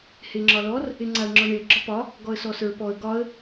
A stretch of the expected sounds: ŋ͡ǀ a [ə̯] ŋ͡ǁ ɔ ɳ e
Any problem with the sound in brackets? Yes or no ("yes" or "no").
no